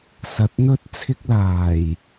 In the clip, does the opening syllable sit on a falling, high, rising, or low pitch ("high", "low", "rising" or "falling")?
low